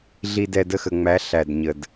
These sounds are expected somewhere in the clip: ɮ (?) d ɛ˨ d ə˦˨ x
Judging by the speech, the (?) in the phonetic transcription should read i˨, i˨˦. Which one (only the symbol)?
i˨